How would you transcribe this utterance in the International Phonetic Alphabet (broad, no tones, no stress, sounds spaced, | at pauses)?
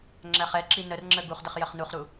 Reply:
ŋ͡ǁ æ χ ɛ ǁ i n ə r ŋ͡ǁ ə ɡ u χ d ə χ j ə χ n u χ ɾ u